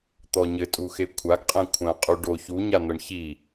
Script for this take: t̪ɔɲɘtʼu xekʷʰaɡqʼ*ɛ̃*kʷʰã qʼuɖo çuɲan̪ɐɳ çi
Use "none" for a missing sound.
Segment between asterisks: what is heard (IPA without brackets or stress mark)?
ɛ̃